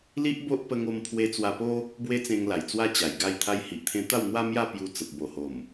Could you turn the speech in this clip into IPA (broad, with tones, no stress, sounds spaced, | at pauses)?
l i˦ ʔ b o˦ ʔ p ə˧ ŋ o˧ m pʰ w e˧ t͡s w a˧ p o˦ | b w e˦ t͡s ẽ˧ ŋ l a˨˩ j t͡s w a˦ t͡ɕ a˨˩ j ɡ a˥˧ j t̪ʰ a˧ j h i˨ ʔ t̪ʰ ẽ˧ t̪ a˥˧ w n̪ w a˦ m j a˥˧ p j u˧ t͡s ə˨ p̚ b o˨˩ h o˨˩ m